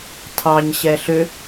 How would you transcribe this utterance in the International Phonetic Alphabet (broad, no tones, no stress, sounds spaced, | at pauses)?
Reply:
tʰ ɑ ɲ ɕ ɛ ɬ ʏ